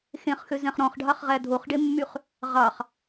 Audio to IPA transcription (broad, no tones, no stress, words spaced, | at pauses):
xẽχxø zɛ̃χɾɔ̃χɖʱɑχʁæ dʱoχɖemːyχ | ʁɑχ